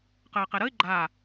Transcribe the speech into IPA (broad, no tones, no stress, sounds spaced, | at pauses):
q əː q ɛ ɾ ə ɪ̯ ɡ͡ǃ a